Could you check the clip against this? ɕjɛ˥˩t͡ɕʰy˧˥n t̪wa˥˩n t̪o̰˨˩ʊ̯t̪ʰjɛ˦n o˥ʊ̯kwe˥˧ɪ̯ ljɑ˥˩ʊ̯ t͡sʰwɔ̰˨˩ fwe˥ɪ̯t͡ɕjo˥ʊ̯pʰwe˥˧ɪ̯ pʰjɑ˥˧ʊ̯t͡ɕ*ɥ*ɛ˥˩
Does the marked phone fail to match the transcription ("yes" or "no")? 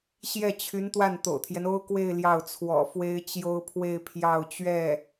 no